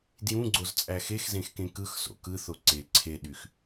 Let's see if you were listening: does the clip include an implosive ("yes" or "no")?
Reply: yes